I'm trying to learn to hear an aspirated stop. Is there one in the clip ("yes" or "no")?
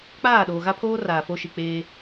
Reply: yes